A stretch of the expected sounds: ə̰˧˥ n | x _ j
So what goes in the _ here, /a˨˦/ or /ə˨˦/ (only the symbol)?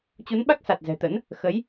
ə˨˦